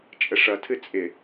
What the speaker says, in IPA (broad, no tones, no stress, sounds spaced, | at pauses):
t͡ʃʼ ə ʂ ʌ tʰ ɨ t͡sʼ ɪ